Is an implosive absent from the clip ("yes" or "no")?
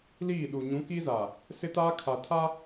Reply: no